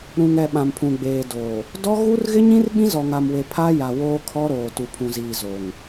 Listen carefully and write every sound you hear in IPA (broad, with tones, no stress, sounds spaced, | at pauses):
ɾ ũ˨ ŋ ɛ˨ ɓ ã˨ m pʰ ũ˨ ɡ͡b eː˨ d oː˨ | d ɔ˦ ɣ u˦ r ɣ ɪ˦ ɲ ĩ˦ r ɓ ĩ˦ z ɔ˨ ŋ a˨ m w e˨ pʰ a˦ j a˨ w oː˦ kʰ ɔ˦ ɾ oː˨ t u˨ pʰ ũ˨ z iː˨ z o˨ ŋ